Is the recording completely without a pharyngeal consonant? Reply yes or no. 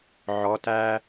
no